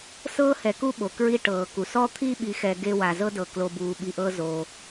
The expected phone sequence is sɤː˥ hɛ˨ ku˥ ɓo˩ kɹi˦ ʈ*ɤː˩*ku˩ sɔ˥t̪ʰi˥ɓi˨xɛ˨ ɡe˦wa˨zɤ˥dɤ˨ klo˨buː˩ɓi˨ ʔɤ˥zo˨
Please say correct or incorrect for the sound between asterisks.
correct